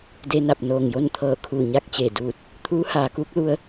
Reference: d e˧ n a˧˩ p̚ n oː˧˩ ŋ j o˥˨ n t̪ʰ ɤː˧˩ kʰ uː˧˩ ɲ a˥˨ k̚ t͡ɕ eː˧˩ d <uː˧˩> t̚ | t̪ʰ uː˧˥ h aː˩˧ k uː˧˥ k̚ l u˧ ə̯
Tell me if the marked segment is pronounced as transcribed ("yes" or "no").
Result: yes